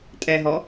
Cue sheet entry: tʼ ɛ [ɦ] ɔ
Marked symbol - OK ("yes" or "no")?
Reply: yes